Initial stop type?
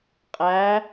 ejective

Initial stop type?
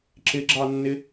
click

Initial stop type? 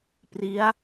plain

